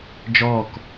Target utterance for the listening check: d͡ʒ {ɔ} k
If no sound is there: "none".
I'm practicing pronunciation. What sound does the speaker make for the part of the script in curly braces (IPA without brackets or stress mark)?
ɔː